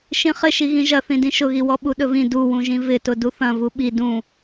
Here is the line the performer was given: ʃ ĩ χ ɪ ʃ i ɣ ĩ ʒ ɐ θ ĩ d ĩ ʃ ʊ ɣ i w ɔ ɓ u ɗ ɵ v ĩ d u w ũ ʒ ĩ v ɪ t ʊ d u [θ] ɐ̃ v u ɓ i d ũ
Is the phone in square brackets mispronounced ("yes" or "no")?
no